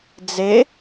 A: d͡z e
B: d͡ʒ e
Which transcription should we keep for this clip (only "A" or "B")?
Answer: A